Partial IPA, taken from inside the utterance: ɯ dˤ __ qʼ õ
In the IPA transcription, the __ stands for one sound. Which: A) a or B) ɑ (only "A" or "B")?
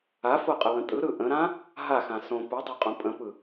B